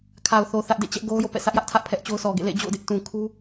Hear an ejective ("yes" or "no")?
no